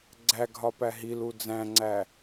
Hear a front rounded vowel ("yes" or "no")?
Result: no